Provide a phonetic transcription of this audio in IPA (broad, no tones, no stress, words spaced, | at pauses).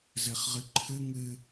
zɘχʁɨǃʰɨ ŋɨ